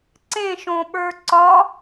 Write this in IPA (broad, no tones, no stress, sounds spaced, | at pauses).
ǀ ẽ ʃ õ ɓ ə˞ ǀ ɒ